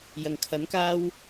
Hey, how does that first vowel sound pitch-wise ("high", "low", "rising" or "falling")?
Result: low